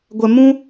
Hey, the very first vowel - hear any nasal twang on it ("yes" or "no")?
no